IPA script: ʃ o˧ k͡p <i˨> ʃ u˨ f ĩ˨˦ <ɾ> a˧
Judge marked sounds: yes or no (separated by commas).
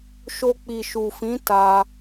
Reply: yes, no